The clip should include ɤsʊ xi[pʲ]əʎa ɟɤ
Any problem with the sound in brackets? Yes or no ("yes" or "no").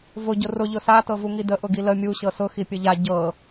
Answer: no